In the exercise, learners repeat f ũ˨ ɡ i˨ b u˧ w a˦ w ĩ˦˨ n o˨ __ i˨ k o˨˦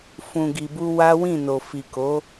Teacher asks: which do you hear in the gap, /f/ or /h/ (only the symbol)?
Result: f